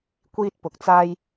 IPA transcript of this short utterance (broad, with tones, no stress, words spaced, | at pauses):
kʷiː˥t̚pʊ˨˥k̚ t͡saː˥j